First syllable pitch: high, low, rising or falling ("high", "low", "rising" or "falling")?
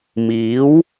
rising